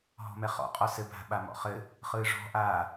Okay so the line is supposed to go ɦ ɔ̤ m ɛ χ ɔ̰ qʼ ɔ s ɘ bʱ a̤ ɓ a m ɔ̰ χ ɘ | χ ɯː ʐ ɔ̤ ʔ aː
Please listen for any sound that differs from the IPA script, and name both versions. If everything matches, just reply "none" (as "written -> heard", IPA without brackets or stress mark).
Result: none